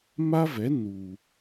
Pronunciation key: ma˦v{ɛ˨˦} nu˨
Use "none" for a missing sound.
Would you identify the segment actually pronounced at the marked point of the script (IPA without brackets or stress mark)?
ɛ˨˦